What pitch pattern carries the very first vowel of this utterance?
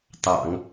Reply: low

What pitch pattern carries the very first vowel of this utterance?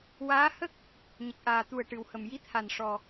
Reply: rising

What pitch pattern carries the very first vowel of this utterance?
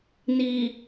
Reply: low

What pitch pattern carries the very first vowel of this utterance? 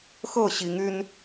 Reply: falling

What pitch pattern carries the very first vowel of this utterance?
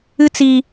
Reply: high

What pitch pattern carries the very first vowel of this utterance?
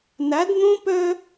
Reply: rising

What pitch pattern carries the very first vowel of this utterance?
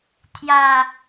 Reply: low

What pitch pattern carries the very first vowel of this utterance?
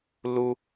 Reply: high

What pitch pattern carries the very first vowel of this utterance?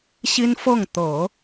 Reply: high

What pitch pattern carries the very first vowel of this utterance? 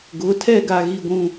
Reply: rising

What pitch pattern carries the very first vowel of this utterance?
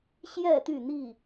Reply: falling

